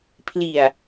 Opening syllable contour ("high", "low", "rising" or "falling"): low